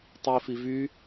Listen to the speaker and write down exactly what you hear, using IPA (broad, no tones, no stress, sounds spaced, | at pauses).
tˤ i f i v y